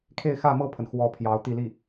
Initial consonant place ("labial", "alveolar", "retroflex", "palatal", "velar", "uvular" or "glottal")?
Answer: velar